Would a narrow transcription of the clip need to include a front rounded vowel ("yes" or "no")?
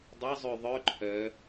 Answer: yes